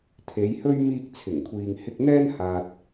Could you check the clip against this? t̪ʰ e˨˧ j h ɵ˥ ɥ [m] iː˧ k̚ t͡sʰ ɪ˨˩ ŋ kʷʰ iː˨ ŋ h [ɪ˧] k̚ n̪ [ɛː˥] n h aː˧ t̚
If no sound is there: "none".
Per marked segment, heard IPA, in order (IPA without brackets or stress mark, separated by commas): m, ɪ˧, ɛː˥